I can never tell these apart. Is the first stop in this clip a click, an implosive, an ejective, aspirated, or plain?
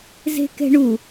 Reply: plain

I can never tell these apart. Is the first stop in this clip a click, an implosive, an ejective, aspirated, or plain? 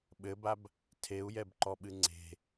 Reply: implosive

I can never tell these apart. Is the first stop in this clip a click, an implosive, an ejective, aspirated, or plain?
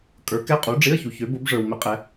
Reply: ejective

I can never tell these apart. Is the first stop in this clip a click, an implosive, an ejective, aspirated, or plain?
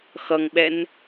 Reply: implosive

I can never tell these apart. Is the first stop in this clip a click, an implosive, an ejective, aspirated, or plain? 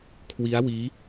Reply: aspirated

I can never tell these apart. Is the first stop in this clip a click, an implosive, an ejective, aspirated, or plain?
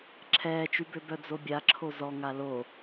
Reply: click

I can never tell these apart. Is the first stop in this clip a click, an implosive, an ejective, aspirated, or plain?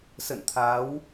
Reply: aspirated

